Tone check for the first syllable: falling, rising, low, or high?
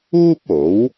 high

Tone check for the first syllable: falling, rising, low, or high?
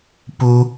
high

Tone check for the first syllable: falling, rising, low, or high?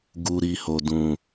low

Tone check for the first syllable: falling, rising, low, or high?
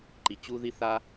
low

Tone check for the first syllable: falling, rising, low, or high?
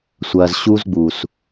low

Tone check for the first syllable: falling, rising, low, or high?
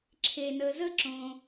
low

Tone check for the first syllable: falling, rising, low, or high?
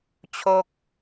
falling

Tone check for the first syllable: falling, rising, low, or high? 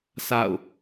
falling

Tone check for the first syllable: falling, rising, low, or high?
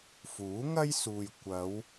rising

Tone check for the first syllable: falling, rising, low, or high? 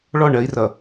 falling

